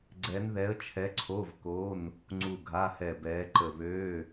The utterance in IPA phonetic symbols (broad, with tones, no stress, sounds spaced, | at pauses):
ɡ͡ǀ ɛ˧˥ n ð ɛ˧˥ ə̯ t͡ʃʰ ɛ˧˥ ǀʰ o˧˥˧ v k o˧˥˧ n | ŋ͡ǀ u˦˨ ɡʱ a˧˥˧ h ɛ˦˨ b ɛː˧˥ ǃ ə˦˨ β øː˧˥˧